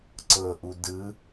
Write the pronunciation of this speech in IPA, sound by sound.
ǀ ɤ ʔ u d ɯ

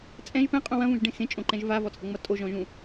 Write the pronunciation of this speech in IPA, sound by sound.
t͡sʼ ɛ̃ ʒ p ɛ̃ qʼ ũ w ɐ̃ v ũ ʒ ɖ ẽ x ẽ t͡ʃʼ õ ǃ ɛ̃ ʒ v a v ɔ t͡sʼ ɐ ŋ͡m ʌ tʼ o ʒ ɔ̃ ʒ ũ

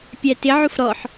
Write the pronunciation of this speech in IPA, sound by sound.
pʲ æ t ɪ ʕ u f ɾ ɔ ħ

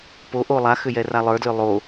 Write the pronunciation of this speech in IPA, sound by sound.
p o ʔ o lˠ a x ʏ j ɛ r a lˠ ə˞ d l ʏ lˠ o

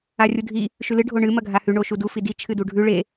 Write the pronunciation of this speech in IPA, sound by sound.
a rʲ u dʱ i | ʃ ʉ l ɨ ɖʱ o ɳ ɨ m ɐ ɡʱ a h ʉ ɳ o ʃ u d u f i d i t͡ʃʰ ɨ d u ɖʱ ʉ ɭ e

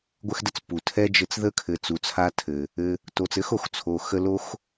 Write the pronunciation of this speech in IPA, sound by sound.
ɡʷ ɘ˦ x d ə˦ t͡s p u˩ tʰ ɛ˥ d͡ʒ ɘ˦ t͡s ð ə˥ kʰ ɘ˨ t͡s u˨ t͡sʰ a˦ tʰ ɘ˩ | ɘ˨ | t o˨ t͡s ɘ˥ x o˨ x t͡sʰ o˨ x ə˦ l o˥ x

